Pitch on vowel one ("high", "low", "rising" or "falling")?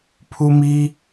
high